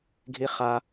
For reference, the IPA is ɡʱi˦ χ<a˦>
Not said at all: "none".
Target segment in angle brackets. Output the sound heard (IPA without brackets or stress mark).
a˦